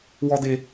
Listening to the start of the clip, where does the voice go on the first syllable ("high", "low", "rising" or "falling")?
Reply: high